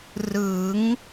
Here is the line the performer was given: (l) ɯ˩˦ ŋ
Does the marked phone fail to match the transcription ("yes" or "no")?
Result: yes